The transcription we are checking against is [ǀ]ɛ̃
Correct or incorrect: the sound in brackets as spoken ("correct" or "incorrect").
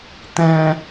incorrect